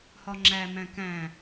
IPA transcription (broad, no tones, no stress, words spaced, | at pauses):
hɒŋ͡ǁæmæ̃ kæ̃